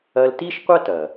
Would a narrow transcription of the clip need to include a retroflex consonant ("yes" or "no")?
no